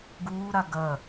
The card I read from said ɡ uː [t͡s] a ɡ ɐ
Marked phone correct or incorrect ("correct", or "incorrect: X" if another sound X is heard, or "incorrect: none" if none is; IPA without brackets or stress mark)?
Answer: incorrect: ɾ